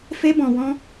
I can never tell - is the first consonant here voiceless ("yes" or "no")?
yes